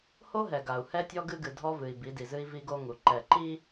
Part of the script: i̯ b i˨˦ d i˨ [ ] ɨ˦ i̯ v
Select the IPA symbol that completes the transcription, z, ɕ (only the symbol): z